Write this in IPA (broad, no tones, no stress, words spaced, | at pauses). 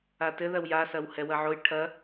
atɘ ðɐwjasɐwhɛ wɐʕoj ʈʰɐ